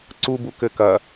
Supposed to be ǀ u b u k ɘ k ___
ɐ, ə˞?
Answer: ɐ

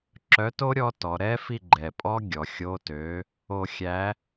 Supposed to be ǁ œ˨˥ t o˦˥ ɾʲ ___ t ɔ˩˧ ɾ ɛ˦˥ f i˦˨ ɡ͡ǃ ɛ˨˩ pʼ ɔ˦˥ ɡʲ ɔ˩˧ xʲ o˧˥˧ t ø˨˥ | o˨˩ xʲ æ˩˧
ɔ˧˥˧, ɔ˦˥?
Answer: ɔ˦˥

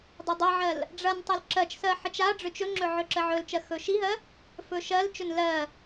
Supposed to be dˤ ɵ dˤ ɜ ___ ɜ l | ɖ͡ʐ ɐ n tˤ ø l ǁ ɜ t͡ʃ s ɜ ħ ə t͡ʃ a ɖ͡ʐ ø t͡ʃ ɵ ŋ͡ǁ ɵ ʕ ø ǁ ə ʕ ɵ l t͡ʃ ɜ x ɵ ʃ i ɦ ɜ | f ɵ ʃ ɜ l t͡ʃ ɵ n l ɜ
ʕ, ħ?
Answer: ʕ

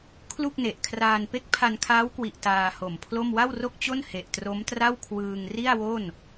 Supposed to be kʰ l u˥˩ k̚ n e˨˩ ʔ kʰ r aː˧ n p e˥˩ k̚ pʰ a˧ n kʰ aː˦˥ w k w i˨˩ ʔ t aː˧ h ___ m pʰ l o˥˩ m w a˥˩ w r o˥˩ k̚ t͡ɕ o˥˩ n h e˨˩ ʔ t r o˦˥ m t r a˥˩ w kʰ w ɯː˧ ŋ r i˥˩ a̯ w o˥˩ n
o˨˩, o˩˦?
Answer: o˨˩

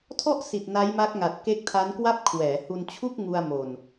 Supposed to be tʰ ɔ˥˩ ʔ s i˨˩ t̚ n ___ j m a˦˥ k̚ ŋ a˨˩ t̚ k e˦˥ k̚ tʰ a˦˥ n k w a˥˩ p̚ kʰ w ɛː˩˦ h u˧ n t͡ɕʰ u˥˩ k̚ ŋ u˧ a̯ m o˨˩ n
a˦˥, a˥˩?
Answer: a˦˥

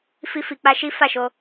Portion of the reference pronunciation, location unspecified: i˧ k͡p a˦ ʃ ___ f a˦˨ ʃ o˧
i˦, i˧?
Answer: i˦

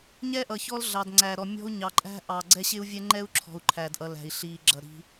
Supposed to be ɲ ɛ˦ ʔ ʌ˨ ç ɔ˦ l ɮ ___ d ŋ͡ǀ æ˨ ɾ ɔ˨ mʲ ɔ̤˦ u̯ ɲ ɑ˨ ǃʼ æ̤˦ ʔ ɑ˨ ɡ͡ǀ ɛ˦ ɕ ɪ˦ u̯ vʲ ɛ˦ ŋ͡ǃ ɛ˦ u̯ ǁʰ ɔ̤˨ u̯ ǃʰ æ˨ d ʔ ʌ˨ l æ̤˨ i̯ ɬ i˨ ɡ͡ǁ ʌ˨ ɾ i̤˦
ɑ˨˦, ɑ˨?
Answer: ɑ˨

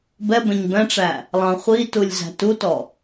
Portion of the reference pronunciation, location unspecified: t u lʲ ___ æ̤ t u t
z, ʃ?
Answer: z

